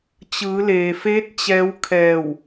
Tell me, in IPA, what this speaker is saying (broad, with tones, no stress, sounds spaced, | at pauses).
t͡ɕ ɯː˩˧ l eː˩ f eː˧˥ t̚ t͡ɕ ɛː˧˥ w kʰ ɛː˧˩ w